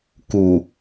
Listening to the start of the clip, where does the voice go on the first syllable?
low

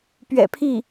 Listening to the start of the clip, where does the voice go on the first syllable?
low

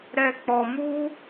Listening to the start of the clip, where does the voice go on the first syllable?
low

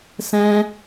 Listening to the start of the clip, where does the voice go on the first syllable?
high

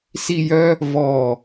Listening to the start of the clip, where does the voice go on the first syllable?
falling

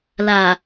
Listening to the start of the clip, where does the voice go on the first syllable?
low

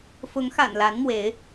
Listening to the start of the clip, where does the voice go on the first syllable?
rising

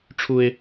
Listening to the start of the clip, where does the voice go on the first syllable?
high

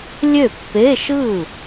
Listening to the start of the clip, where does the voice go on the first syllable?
falling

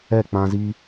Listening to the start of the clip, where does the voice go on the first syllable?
falling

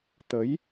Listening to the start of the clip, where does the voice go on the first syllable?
rising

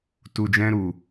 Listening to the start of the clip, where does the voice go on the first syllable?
low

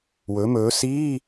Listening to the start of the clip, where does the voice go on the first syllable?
rising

